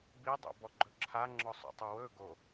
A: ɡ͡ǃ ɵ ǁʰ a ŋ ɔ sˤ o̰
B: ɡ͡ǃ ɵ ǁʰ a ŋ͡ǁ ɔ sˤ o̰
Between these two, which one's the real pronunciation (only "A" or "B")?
B